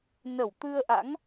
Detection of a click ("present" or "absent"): absent